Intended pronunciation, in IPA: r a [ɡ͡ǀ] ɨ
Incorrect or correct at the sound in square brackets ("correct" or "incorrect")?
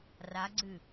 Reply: correct